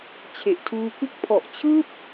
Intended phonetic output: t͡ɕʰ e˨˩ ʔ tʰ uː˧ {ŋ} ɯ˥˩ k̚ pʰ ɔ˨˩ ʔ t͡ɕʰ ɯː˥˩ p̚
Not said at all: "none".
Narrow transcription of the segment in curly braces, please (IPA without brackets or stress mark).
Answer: k